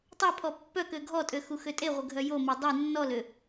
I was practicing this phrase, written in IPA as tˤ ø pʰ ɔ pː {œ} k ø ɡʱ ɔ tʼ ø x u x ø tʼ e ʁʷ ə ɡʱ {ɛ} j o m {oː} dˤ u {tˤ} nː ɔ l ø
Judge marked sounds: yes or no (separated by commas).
yes, no, no, no